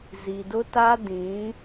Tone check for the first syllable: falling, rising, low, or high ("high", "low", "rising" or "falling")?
low